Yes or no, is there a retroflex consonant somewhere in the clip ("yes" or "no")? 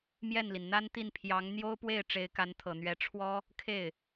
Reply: yes